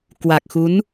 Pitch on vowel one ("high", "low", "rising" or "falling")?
low